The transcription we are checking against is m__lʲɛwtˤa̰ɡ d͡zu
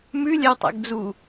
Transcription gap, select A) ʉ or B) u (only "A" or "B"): A